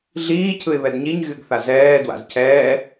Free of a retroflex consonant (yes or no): yes